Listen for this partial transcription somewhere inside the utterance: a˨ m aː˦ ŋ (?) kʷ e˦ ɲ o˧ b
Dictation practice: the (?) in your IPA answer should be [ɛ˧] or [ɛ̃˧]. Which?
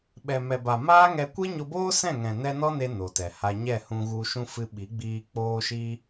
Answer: ɛ˧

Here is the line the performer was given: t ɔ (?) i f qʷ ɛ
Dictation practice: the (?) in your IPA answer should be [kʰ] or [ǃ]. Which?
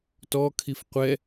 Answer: kʰ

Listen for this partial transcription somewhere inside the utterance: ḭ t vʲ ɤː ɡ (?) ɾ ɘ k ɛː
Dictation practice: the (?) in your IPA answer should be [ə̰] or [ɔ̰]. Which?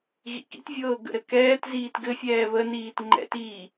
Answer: ə̰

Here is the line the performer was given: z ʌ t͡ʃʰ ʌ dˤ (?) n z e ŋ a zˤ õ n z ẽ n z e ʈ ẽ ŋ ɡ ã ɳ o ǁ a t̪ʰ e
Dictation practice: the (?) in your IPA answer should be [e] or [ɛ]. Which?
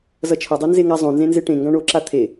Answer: e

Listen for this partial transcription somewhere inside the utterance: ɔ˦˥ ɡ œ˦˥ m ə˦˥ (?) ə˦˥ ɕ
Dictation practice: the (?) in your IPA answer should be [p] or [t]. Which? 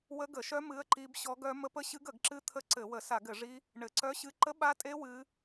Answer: p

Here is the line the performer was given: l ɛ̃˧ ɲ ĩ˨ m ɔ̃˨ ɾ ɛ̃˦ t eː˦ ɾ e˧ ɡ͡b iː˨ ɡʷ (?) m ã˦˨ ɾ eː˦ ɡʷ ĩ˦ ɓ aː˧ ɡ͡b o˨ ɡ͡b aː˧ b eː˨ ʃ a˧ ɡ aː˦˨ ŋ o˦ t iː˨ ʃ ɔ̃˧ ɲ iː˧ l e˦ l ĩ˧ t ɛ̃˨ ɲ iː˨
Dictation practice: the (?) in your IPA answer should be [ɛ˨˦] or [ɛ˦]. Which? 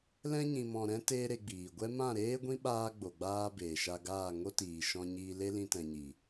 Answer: ɛ˦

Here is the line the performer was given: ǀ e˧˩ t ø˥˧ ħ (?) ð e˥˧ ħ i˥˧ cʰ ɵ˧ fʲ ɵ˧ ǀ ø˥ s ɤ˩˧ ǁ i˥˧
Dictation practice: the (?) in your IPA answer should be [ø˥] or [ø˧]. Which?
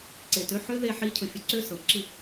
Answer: ø˥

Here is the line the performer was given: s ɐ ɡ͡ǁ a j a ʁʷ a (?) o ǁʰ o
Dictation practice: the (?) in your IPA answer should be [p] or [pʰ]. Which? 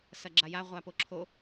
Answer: p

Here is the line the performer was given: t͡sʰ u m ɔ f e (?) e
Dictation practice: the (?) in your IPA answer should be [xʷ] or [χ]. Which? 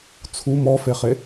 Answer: χ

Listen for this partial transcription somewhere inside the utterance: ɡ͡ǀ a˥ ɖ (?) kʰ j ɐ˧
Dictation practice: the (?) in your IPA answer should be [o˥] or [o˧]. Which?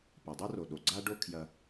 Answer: o˥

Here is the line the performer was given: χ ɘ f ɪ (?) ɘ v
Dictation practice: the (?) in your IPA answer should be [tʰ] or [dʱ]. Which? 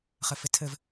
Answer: tʰ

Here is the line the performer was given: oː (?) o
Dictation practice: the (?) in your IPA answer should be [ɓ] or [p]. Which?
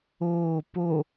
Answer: p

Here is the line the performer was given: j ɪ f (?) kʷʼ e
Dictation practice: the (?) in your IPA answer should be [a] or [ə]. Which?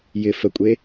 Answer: ə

